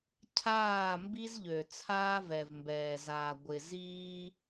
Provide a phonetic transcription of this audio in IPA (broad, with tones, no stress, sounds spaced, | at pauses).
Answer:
cʰ aː˦˨ m b i˦ z ʎ ø˨ t͡sʰ aː˦ v ɛ˨ v m b ɛː˨ z aː˨ ɡʷ ɪ˨ z iː˦